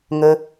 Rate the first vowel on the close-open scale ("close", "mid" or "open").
mid